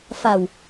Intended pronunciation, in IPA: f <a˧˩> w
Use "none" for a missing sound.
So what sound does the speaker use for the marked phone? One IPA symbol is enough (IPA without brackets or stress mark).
a˧˩